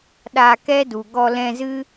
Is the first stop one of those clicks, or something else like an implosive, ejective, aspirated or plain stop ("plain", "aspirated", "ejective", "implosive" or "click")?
implosive